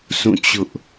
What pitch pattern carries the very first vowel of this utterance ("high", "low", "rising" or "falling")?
falling